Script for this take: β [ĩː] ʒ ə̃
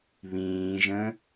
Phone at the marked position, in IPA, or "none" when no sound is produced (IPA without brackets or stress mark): ĩː